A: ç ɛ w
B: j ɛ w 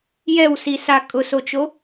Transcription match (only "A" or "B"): B